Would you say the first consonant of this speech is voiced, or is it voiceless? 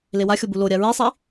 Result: voiced